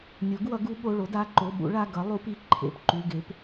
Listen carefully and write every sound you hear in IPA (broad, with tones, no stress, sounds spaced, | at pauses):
nʲ o˩˥ ɡ w ʌ˩˥ ɡ u˩˥ ɓ o˩˧˩ ɭ o˩˥ d a˩˧˩ ǃ o˩˧˩ ɓ ṵ˩˥ ɭ a˩˧˩ ɡ ʌ˩˥ lˠ u˩˥ p i˩˧˩ ǃʰ ḛ˩˧˩ p ǃ u˩˧˩ ɡ e˩˥ p